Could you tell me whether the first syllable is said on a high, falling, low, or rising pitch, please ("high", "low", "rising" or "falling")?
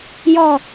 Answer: falling